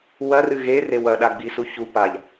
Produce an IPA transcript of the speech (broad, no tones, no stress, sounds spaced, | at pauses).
w ɐ r ɨ ɣ e r e w ɐ ɗ a ɡ͡b i s u ç u p a ʎ